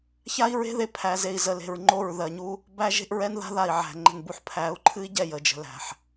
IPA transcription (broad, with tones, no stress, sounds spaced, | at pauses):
ç a˦ i̯ ɹ e̤˦ ð e˨ pʰ æ˨ z e˨ i̯ z ə˨ l e̤˨ ɹ ŋ͡ǃ o˦˨ ɹ ð ɜ˨ ɲ u˦ | b æ˦ ʒ e̤˦ ʔ ɹ ɛ˦ n ð a̤˦ ð a˨ i̯ ʕ æ̤˨ ŋ͡ǃ ə̤˨ n b u˨ ħ pʰ æ˨˦ u̯ ǃʰ ɨ˦ i̯ ɟ ɛ˦˨ j ə˨ d͡ʒ ə̤˨ l æ̤˨ ħ